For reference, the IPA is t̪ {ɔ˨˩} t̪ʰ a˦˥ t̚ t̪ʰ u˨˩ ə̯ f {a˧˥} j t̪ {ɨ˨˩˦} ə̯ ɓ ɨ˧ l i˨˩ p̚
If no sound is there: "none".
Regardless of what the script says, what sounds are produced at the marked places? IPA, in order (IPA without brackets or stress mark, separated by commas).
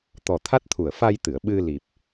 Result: ɔ˨˩, a˧, ɨ˨˩˨